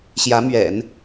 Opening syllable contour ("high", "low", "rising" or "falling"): rising